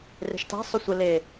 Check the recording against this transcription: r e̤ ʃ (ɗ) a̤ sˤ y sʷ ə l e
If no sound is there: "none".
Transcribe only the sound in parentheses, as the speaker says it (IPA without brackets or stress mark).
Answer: t